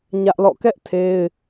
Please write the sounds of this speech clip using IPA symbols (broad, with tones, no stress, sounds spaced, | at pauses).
ɲ ä˦ ʔ l ɔ̰˦˨ k ɛ˦ ʔ tʰ e˦ ɪ̯